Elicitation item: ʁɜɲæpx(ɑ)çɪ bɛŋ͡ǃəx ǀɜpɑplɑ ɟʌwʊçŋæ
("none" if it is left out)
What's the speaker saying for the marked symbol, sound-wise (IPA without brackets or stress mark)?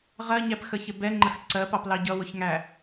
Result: ə